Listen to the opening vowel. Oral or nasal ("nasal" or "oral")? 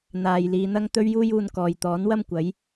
oral